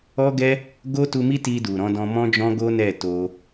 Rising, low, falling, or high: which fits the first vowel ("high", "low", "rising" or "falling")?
high